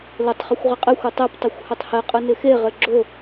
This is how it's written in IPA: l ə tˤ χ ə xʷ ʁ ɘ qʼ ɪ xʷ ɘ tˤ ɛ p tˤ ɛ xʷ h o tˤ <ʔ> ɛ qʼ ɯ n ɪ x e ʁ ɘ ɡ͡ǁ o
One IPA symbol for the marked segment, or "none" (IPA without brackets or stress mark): h